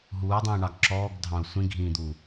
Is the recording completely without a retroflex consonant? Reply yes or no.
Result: no